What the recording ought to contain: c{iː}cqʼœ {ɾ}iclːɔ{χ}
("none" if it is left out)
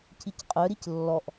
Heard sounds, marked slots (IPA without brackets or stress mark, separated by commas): i, ɾ, ʔ